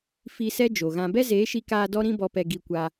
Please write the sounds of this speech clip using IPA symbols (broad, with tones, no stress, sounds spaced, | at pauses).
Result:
f i˧ s ɛ˦ d͡ʒ o˨ ɣ ã˧ b ɛ˦ z eː˨˦ ʃ i˧ k aː˧ d ɔ˦ ɾ ĩ˦ b ɔ˧ p ɛ˧ ɡ i˧ kʷ a˧